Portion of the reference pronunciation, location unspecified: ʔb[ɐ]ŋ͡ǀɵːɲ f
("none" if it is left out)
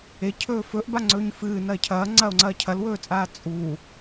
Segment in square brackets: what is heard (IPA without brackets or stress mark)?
a